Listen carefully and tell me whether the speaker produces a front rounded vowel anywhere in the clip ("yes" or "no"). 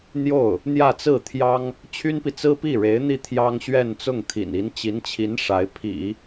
yes